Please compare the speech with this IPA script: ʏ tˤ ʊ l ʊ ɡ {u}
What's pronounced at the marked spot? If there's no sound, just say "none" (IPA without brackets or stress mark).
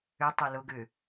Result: ʏ